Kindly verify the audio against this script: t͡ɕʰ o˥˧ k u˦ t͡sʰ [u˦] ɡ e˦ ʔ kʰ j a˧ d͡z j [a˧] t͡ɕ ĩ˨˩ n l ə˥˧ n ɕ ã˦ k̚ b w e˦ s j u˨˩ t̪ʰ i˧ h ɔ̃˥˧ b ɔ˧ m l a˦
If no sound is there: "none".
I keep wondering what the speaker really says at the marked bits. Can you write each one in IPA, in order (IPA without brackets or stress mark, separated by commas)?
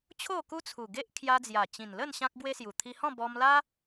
u˨˩, a˨˩